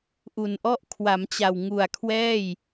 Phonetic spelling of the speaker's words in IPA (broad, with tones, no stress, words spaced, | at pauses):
ʔu˨˩nʔɔ˥˩ʔ kʰwa˩˦mt͡ɕa˨˩wŋu˨˩a̯ kʰwɛː˥˩j